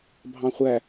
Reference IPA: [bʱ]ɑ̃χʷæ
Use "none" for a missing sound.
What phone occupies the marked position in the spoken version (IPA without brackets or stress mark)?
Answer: bʱ